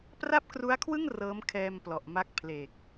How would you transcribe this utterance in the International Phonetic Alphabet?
p r a˥˩ p̚ k r u˦˥ a̯ kʰ w ɯ˥˩ ŋ r ɤː˦˥ m kʰ ɛː˧ m p l ɔ˨˩ ʔ m a˦˥ k̚ pʰ l e˨˩ k̚

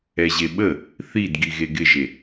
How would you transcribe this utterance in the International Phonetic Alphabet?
ɛ ʑ e ɓ ə | θ i d ɡ i ɣ e ɡ ɪ ʒ e

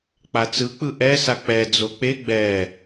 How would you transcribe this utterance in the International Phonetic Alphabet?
k͡p a t͡s ɯ k͡p ɯ ʔ ɛ s a k͡p ɛ d͡z o k͡p e ɡ͡b ɛ

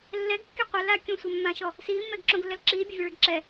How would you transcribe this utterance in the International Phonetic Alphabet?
lː ɛ ɡ kː i qʷ a l aː kʲ õ sʷ ɛ mː ã ʃ ɔ | s iː mː ɛ ɡ ǁ õ ɡ lː ɛ l ǁ iː bʲ ɑ vʲ ɔ ɭ ɛ ɡ ǁ ɛ

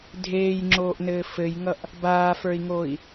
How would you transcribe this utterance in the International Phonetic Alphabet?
dʱ eː j ŋ͡ǁ oː ʔ n ɘː f ɘ j ŋ ʌ ʔ | b aː f ə˞ i̯ ŋ oː i̯

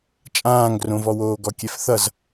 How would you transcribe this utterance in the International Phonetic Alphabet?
t͡ʃʼ ãː ŋ ɡ r õ v ɔ w oː ɡ ɔ kʲ ɛ f θ ʌ z

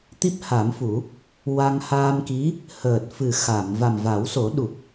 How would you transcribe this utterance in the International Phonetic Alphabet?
t̪ i˦˥ p̚ h a˨˩˦ m f u˨˩˦ | w a˧ ŋ h aː˧ m k i˧˥ | h əː˨˩ t̚ f ɨ˨˩ x a˨˩˨ m v a˨˩ m v a˨˩˦ w s o˨˩˦ ɗ u˨˩ p̚

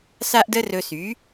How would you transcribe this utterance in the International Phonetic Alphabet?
s a˥ ʔ d ə˥ r ɵ˧ s y˩˥

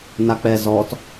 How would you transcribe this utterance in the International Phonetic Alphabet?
n a k͡p ɛ z ɔ t

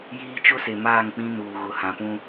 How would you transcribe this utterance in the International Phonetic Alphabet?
j iː˦ t͡ʃ ʊ˦ s e˨ m aː˦˨ ŋ k͡p ĩ˦ n uː˨ ɣ ʊ˨ h ã˨ p ũ˦

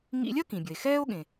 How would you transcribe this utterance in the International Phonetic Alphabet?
ŋ ḭ˦ lʲ ɐ˥ k ĩ˩ bʲ ə˩ e̯ x ɛː˦ o̯ ɠ ẽ˩

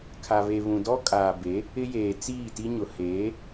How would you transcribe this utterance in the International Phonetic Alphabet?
kʰ a˨ β e˨ β ũ˨ d ɔ˦ kʼ aː˨ b e˨˦ | ɪ˦ j eː˨ t͡s iː˦˨ t i˦ ɲ ʊ˨ h eː˨˦

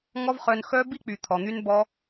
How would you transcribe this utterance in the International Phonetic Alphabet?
ŋ ɔ˦ v χ œ˧ n x œ˦ b i˦ k͡p y˨ t̪ʰ ɔ˨ n̪ y˦ n b ɔ˦

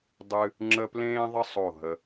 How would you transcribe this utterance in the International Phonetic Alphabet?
dˤ ɨ˧ | ŋ͡ǁ ə˥ p l ẽː˥ ðˤ ə˥ sˤ o˧˩ ɦ ə˧

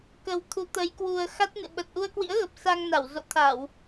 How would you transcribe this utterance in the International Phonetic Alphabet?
k ə˨˩ w t̪ʰ u˨˦ t̪ ə˨˦ j k w u˨˩ ə̯ x a˦˥ t̚ n ɨ̰˧˨ ɓ ə˨˩ t̚ ʔ u˧ ə̯ k w ḭ˧˥ ə̯ ɣ ə˨˩ p̚ s a˧ ŋ n a˧˩ w z o̰˧˨ t̪ʰ a˧˩˨ w

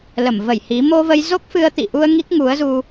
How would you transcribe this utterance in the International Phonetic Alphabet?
l ə˧˩ m v ə˧˩ j h i˨˦ m o˧ v ə˧ j z o˦˥ k̚ f ɨ˧ ə̯ t̪ ḭ˧˨ ʔ u˧ ə̯ ŋ i˦˥ k̚ ŋ u˨˦ ə̯ z u˧

